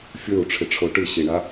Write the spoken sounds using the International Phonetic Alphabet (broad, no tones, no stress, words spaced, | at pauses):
fʲə˞u̯ʈ͡ʂʰɪʈ͡ʂʰo ʈɨɕiɳa